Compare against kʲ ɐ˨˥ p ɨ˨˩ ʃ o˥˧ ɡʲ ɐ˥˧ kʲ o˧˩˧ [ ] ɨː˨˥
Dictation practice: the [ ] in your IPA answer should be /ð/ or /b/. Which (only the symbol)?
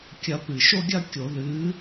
ð